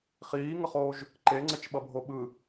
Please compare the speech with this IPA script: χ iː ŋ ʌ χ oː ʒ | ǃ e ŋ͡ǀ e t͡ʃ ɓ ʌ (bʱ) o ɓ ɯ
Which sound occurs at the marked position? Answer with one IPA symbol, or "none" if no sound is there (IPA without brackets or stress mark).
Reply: bʱ